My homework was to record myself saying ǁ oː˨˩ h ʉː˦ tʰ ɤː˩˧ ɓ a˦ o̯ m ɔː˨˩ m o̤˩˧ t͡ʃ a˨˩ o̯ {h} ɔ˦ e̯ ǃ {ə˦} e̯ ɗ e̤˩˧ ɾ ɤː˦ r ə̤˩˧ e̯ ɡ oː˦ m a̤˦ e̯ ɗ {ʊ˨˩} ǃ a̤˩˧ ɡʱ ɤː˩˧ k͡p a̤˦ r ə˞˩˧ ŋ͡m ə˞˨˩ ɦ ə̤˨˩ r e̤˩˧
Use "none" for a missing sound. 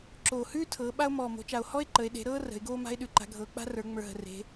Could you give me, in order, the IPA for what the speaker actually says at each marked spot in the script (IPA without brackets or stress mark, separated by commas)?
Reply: h, ə˩˧, ʉ˨˩